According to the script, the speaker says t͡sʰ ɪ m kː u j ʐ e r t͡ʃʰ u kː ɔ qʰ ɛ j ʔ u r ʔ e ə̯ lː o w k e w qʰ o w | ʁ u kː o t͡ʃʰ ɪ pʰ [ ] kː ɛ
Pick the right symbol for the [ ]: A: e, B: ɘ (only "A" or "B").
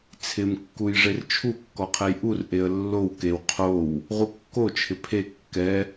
A